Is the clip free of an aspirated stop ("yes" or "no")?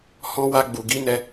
yes